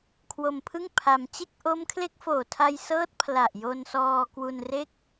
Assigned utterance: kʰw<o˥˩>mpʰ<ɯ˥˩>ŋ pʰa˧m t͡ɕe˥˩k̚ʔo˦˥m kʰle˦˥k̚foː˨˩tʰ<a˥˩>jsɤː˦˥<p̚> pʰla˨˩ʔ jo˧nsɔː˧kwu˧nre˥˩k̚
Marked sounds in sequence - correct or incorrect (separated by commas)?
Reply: incorrect, correct, incorrect, incorrect